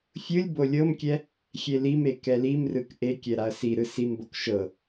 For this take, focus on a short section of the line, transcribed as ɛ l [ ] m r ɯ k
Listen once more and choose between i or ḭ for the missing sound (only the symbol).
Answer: i